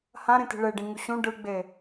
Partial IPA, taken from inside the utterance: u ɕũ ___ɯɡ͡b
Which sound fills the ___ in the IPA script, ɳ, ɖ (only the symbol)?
ɖ